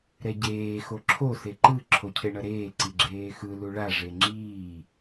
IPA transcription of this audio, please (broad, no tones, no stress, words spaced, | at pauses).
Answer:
ɾɛɟeː xoǁʰo seǃɯ ǁʰocʰeɳʌɾeː ǀiɡ͡ǁeːxɯ luɭa ʐeŋ͡ǁiː